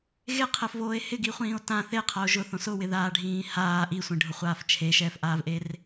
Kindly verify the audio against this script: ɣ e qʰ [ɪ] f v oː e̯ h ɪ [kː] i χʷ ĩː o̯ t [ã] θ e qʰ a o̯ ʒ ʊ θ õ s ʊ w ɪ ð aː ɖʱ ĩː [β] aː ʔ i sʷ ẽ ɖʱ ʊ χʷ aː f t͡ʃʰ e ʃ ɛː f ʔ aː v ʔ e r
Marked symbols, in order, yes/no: no, no, yes, no

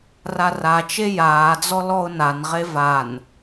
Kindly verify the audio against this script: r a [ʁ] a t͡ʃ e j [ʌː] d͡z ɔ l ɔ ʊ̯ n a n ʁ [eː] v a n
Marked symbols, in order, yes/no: no, no, no

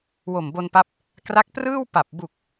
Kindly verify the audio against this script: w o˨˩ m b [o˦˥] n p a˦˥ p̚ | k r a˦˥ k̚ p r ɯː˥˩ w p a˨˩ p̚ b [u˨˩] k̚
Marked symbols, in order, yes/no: no, yes

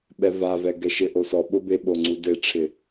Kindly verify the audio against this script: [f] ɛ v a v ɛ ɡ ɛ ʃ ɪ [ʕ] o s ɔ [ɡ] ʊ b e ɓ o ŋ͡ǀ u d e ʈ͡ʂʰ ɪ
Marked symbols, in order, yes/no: no, no, no

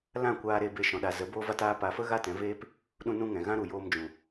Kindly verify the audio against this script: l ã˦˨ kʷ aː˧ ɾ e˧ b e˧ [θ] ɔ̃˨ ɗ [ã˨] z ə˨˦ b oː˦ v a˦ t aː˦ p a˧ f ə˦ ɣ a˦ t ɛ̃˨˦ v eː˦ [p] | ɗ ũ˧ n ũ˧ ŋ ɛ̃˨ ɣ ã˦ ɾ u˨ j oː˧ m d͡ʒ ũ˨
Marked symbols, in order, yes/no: no, no, yes

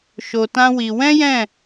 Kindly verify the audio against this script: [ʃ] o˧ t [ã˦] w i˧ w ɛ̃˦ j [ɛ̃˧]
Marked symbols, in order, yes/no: yes, yes, no

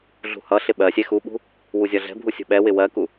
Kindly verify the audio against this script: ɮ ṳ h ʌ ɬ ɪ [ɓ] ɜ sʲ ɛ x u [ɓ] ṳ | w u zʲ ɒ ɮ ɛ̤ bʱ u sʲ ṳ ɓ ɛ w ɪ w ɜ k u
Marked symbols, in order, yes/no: yes, yes

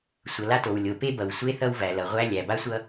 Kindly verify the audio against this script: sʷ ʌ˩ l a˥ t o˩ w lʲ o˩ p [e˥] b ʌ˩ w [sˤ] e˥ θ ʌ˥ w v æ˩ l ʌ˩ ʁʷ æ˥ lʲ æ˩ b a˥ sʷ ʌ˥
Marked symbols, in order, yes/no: yes, no

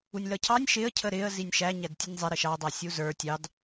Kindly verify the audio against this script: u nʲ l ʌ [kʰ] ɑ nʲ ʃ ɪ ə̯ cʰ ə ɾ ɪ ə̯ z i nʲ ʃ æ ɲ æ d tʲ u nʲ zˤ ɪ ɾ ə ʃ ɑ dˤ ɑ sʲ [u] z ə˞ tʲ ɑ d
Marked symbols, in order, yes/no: no, yes

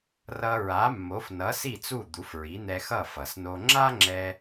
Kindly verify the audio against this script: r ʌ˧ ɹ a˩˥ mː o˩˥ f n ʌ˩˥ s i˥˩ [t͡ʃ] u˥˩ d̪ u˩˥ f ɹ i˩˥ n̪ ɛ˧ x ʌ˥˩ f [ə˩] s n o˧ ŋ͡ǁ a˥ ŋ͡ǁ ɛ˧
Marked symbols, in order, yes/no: no, no

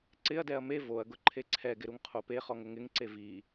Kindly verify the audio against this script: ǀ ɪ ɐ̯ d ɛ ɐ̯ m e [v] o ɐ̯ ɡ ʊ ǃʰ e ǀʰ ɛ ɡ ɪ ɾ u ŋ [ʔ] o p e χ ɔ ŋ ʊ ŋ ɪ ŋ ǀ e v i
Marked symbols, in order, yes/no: yes, no

